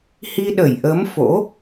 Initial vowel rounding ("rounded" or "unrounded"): unrounded